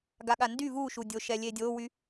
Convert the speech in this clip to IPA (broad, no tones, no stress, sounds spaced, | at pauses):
ɡ a ɠ a n d y v u ʃ u dʲ o ʃ ɛ lʲ e dʲ o w y